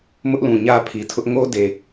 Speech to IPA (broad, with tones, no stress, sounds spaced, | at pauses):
m ʊ˦ ʔ l ũ˨ ɲ ä˦ pʰ i˨ tʰ ʊ˦ ʔ ŋ o˦ d e˨